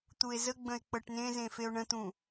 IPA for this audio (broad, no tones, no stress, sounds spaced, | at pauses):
t̪ u e̯ z ə ɡ͡b ə̃ e̯ k͡p ɤ ʈ n ẽ z ẽ f e o̯ ɳ ə̃ t̪ ũ